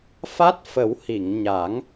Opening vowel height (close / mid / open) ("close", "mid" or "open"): open